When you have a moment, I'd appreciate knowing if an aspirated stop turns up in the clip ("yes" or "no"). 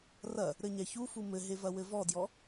no